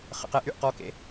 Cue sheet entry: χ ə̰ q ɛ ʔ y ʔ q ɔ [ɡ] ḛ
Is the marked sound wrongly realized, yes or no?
yes